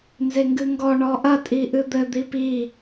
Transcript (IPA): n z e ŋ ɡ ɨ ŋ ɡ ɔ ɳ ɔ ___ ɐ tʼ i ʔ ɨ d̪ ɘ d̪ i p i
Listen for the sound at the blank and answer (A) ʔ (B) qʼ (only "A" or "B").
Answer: A